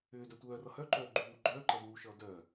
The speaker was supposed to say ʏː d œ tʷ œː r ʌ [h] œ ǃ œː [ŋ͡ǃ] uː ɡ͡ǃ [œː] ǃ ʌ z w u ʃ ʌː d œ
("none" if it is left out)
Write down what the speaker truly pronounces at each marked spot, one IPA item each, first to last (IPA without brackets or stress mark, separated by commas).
h, ɡ͡ǃ, œː